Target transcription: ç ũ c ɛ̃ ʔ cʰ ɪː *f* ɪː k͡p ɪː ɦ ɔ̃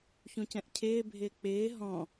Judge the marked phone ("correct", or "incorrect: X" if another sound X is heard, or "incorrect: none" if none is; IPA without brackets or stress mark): incorrect: bʱ